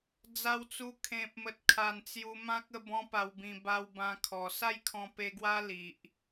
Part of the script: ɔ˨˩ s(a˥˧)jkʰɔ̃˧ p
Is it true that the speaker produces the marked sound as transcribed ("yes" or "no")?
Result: yes